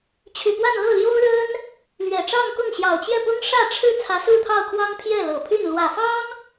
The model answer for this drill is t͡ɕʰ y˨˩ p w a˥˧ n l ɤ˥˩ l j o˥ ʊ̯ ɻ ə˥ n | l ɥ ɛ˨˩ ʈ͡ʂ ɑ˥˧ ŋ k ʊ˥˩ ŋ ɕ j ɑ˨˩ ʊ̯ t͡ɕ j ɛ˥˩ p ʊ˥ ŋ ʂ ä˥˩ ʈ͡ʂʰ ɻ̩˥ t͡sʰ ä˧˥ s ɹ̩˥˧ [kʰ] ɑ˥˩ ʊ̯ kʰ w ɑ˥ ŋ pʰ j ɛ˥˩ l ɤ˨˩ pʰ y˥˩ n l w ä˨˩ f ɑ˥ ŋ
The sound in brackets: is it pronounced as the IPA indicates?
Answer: no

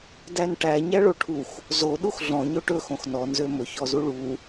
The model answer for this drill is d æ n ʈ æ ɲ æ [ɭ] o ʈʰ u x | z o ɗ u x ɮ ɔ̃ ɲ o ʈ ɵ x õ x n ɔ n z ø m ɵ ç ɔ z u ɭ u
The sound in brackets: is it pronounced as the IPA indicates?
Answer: yes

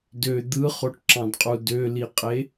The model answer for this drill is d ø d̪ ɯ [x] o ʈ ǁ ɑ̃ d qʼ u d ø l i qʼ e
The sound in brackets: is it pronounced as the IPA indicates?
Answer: no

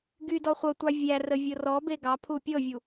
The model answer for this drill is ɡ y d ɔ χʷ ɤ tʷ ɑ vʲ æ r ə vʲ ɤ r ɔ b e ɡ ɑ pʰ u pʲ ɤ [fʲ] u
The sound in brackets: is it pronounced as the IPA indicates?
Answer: no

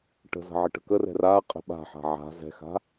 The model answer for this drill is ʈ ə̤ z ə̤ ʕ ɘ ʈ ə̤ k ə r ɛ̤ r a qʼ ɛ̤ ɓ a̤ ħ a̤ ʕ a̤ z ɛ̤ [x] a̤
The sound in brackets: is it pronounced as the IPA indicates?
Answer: yes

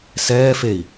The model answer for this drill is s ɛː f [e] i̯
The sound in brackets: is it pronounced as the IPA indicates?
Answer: yes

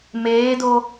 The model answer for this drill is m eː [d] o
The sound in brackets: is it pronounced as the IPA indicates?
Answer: yes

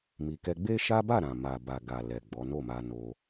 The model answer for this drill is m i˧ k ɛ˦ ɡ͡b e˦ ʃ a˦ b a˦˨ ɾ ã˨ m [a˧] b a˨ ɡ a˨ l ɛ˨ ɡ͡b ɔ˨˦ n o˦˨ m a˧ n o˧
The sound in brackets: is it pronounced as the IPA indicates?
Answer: no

